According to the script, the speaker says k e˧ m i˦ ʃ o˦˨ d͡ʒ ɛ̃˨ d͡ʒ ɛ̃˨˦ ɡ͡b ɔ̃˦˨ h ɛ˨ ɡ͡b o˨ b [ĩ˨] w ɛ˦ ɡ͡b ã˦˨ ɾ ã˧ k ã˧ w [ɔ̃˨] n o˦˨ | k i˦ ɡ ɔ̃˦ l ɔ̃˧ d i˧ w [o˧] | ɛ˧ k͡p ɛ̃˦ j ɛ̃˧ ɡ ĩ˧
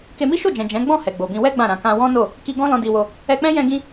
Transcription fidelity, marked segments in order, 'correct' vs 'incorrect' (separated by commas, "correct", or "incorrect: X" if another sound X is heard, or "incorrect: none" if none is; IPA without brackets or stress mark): incorrect: ĩ˧, incorrect: ɔ̃˦, correct